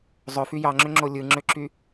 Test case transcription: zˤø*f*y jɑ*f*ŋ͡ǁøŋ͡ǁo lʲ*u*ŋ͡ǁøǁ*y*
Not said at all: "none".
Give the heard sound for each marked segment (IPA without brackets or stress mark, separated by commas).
f, none, ɯ, y